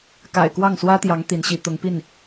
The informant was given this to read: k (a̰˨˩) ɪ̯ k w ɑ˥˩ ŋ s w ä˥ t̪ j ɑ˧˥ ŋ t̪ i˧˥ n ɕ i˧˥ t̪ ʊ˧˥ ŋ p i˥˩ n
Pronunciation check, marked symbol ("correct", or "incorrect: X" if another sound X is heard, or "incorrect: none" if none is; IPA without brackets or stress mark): correct